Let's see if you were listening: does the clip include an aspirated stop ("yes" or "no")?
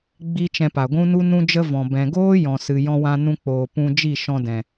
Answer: no